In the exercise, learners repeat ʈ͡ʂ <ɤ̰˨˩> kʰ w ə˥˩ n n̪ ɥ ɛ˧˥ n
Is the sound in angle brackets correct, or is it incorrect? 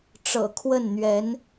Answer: correct